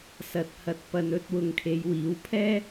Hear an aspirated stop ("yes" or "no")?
yes